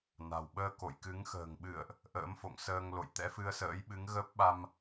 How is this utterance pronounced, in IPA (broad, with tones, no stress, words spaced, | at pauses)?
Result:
na̤˨˩wɓəː˧ko̰˧˨jkɨ˨˦ŋ xə̤ː˨˩ŋɓɨ̰˧˨ə̯ʔ | ʔə̰ː˧˥mfo̰˧˨ŋsəː˧ŋlo̰˧˨j t̪ɛ̰˧˥fɨ˧ə̯sə̰ː˧˥jɓɨ˨˦ŋ ɣə˦˥p̚ɓa˧m